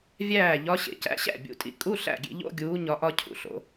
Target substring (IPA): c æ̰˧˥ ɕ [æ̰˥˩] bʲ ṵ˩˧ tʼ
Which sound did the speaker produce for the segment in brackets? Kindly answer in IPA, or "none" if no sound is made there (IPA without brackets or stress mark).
æ̰˥˩